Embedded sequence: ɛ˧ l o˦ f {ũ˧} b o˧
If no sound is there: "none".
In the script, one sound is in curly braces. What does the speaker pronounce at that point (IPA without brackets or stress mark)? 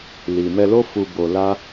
u˧